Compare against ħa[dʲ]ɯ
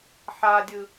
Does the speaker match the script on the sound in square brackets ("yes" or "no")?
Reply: yes